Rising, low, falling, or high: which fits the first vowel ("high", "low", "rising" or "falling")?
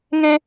high